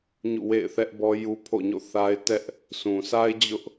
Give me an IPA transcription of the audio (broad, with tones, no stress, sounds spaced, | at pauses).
ɲ ṵ˦˨ w ḛ˦˨ ɪ̯ θ ɛ˦ ʔ b ɔ˦ j u˦ pʰ o̰˦˨ ɲ o̰˦˨ θ a˦ ɪ̯ t ɛ˦ ʔ | s ũ˨ sʰ a˦ ɪ̯ d͡ʑ ʊ˦ ʔ